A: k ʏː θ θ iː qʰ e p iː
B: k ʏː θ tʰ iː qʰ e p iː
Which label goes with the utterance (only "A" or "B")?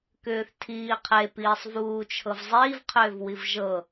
B